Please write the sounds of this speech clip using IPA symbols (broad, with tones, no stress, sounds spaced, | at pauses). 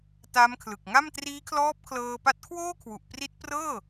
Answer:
t a˦˥ m kʰ l ɯ˨˩ k̚ ŋ a˥˩ m t r iː˦˥ kʰ l ɔː˦˥ p̚ kʰ l ɤː˧ p a˦˥ t̚ kʰ w oː˥˩ kʰ w u˨˩ ʔ p r i˦˥ t̚ p r ɤː˥˩